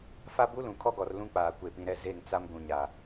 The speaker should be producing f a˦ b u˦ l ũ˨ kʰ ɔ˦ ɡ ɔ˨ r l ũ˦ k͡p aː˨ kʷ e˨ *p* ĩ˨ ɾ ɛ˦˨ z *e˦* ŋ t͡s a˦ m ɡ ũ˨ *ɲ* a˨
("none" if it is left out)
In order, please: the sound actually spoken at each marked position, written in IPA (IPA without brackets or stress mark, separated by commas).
p, e˦˨, ɲ